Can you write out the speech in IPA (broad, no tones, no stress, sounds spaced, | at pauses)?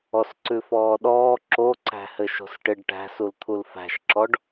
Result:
ɔ s ǀ ʉ f ɔː ɗ ɔː ǁ o ǀ æ̤ h ɘ ʃ o̤ s ʈ ɪ ɖ ʈ æ̤ s u l t̪ʰ u l f æ̤ ʃ ǁ ɔ ɖ